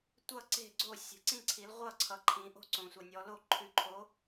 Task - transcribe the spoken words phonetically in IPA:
tʷ ʌ˥˨ ǀ e̤˥˨ ɡ͡ǀ o˥˨ sʲ ə̤˨˦ ǀ ĩ˥˨ ǀʰ i˨˦ l ʁʷ ʌ˥˨ ǀʰ ʌ˨˦ ǃʰ ĩ˨˦ ʔ o̤˥˨ ǀ õ˨ sʷ ʌ˨ nʲ ɔ˨˦ l o˥˨ ǃʰ ʉ˨˦ ǃʰ o˨˦

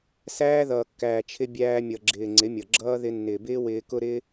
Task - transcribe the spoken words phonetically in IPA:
s æː˦ ð ʌː˨ kː æː˨ t͡ʃʰ ɪ˧ bʲ æː˧ mʲ ʌ˨ ɡ͡ǁ ɪː˨ ŋ͡ǀ ɪ˨˦ mʲ ʌ˨ ɡ͡ǁ ʌː˦ ð ɪ˧ nː ɪː˨ b ɪː˦ w ɪː˧ k ʊ˦ ɾ ɪː˦

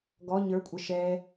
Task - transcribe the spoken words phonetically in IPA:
ɡ ɔ ɲ ə˞ kʷʼ ə ʃ ɛ

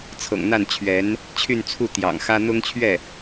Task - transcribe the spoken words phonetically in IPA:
t͡sʰ ɤ̰˨˩ ŋ n̪ a˥˩ n t͡ɕʰ ɥ ɛ˧˥ n | t͡ɕʰ y˥˧ n t͡sʰ u˥˩ t̪ j ɑ̰˨˩ ŋ x ä˥ n̪ ʊ˥ ŋ t͡ɕʰ ɥ ɛ˥˩

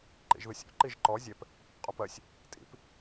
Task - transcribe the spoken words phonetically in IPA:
ǃ ḭ ʒ ð ɯ sʲ ɔ̰ ǃ i ʒ ǃ ɔ zʲ ɛ p | qʼ o p ɜ sʲ | tʼ ḭ p

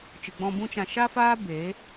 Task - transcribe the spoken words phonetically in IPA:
t͡ʃ ɨ˨ ɡ͡b ɔ̃˧ b ũ˦ t͡ʃ ã˧ ʃ a˦ f aː˦ b e˨˦

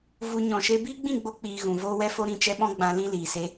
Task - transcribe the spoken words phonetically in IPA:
v u˧ ɲ ɔ̃˨ ʃ e˧ b iː˦ ɡ͡b ĩ˦˨ ɡ͡b o˧ k͡p iː˨ ɣ ũ˨ v oː˦ w ɛ˦ f o˦ ɾ ĩ˦˨ t͡ʃ ɛ˦ ɓ ɔ̃˦ ɡ͡b ã˧ l ĩ˦ l iː˨ s e˧

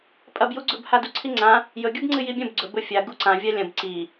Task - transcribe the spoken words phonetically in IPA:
pʼ ɐ b j u ɡ͡ǀ ɵ b h a d u ǀʰ i ŋ͡ǀ ã | j ɵ ɡʲ u b ŋ͡ǀ ɨ j i bʲ ɐ̃ b ɡ͡ǀ ɵ b ɵ fʲ a ɡ u ǀ ã vʲ a lʲ ɐ̃ b ǀ i

